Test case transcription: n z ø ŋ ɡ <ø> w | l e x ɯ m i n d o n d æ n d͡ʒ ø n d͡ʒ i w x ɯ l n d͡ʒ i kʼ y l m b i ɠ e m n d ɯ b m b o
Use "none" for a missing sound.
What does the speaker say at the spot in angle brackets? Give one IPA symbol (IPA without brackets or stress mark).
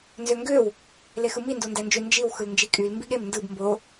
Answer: ø